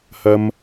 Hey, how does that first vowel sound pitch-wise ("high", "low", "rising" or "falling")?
high